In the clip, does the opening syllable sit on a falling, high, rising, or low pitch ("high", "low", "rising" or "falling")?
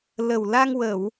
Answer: low